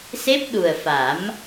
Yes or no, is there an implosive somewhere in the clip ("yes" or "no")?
yes